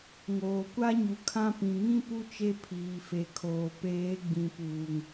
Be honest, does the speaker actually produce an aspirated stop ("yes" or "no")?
yes